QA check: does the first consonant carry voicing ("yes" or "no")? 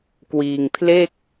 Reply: no